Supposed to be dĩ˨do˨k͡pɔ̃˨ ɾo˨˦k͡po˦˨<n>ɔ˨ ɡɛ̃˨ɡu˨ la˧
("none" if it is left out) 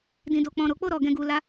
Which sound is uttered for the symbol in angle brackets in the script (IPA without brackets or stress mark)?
ɾ